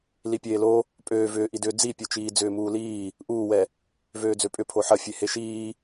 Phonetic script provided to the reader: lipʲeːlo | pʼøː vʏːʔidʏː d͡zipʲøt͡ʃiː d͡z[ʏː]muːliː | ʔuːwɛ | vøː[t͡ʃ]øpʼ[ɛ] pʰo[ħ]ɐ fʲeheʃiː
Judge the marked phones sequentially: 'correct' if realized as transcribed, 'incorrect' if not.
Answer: correct, incorrect, incorrect, correct

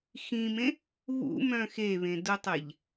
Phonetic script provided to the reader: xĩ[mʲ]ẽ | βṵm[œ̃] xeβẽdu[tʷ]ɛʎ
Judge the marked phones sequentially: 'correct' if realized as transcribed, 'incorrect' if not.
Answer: incorrect, correct, incorrect

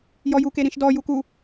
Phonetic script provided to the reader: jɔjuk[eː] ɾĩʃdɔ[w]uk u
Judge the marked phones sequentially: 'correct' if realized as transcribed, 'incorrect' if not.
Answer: incorrect, incorrect

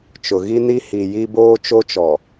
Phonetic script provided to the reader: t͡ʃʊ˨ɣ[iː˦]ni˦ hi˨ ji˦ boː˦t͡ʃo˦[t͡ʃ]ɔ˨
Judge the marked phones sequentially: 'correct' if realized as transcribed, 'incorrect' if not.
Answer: incorrect, correct

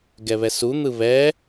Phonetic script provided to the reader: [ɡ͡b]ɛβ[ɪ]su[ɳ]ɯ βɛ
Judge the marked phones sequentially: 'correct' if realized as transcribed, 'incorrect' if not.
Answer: incorrect, incorrect, incorrect

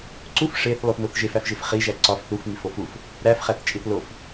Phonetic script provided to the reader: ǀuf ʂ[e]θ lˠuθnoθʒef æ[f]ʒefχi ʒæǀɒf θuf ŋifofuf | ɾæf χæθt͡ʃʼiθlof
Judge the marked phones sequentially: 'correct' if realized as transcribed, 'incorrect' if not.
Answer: correct, correct

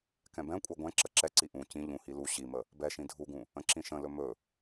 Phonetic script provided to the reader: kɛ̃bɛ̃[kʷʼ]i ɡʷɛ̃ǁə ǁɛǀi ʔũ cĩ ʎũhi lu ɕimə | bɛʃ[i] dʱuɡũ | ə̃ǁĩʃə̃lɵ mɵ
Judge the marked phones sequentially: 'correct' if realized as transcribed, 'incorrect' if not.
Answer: correct, incorrect

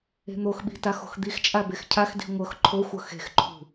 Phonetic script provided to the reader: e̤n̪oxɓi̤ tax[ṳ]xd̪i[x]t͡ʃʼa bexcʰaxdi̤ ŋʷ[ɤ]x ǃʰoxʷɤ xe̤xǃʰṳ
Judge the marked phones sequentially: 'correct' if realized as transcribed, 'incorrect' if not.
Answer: incorrect, correct, correct

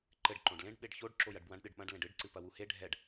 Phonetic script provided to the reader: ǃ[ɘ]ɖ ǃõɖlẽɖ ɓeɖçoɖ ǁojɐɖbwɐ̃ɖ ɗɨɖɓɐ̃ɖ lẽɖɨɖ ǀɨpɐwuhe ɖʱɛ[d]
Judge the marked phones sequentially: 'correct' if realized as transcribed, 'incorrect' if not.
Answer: correct, incorrect

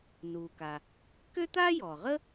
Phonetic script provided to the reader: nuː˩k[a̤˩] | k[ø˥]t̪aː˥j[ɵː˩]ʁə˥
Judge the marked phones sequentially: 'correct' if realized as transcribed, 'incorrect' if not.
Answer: incorrect, correct, incorrect

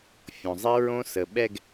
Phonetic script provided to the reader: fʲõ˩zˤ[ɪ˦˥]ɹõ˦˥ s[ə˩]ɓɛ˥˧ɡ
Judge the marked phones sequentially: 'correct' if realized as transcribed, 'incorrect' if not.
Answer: correct, correct

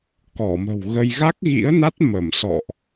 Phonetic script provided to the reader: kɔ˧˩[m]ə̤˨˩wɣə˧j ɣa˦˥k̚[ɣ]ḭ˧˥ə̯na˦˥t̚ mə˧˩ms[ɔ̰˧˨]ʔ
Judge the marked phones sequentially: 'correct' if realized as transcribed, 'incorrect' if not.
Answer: correct, correct, correct

